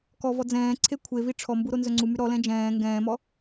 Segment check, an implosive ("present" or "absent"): absent